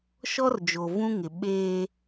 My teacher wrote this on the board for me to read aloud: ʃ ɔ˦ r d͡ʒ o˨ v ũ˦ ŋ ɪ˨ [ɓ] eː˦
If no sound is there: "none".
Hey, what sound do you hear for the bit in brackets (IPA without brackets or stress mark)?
ɓ